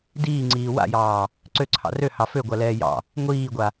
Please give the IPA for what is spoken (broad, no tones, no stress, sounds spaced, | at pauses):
d iː ŋ͡ǀ iː w a̰ j ɑː | ǀ ø ǀʰ ɑ̰ r ø h ɑ f ø ɡʷ a l ɛː j ɑ̰ | ŋʷ iː ɡʷ a